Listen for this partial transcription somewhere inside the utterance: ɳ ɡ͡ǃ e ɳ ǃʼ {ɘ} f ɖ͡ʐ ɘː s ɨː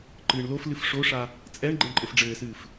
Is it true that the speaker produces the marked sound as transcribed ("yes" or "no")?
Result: yes